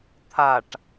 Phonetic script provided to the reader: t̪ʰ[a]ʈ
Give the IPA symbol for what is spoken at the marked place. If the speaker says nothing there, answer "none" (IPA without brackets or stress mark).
a